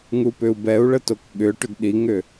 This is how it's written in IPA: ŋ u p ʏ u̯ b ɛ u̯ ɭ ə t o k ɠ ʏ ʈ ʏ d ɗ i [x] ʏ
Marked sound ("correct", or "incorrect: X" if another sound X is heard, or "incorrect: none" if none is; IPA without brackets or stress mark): incorrect: ŋ